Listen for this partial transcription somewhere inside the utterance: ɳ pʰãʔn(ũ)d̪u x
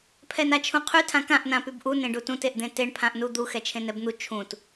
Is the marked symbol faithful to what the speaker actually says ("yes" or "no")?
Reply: no